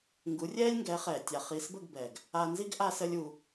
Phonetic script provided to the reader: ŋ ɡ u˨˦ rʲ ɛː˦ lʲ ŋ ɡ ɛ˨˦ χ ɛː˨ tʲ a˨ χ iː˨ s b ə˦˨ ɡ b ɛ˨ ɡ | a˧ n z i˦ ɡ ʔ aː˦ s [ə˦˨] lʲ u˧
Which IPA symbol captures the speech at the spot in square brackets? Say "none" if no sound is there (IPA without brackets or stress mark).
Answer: ə˦